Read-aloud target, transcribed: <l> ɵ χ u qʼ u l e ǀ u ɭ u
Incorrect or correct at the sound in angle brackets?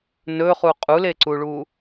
incorrect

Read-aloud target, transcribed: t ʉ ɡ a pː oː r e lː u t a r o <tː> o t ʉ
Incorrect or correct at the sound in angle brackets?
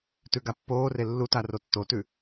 correct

